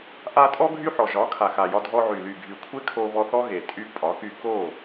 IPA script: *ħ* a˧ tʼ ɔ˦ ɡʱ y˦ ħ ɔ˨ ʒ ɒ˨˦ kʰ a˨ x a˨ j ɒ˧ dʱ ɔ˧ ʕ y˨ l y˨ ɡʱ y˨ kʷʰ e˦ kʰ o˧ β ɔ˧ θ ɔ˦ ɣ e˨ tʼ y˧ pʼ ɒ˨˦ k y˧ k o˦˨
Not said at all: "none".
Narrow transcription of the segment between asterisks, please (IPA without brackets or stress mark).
ʔ